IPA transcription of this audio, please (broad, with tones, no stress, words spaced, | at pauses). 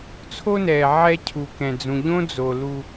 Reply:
t͡sʰo˦nɛː˨ ʕɛ˦cʰu˨ kɛ̃˨d͡zũ˨ʎõ˦ d͡zo˨ lu˦